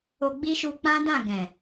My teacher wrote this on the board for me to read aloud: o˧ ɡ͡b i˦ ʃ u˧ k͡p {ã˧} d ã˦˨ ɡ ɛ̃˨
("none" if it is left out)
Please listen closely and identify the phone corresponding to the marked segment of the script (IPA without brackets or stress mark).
ã˦